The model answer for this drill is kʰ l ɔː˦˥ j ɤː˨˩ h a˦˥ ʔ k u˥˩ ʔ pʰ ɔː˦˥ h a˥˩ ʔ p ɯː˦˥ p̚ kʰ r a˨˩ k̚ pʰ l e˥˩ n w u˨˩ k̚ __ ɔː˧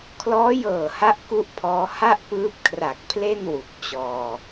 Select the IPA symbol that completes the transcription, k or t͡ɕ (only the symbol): t͡ɕ